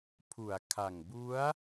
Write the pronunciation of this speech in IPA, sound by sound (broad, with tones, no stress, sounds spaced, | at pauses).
pʰ u˩˦ a̯ kʰ a˨˩ ŋ b u˦˥ a̯